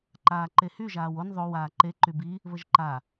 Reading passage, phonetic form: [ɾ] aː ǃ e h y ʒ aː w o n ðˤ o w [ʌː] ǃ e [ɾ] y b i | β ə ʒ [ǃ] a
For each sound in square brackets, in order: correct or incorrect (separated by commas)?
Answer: incorrect, incorrect, incorrect, correct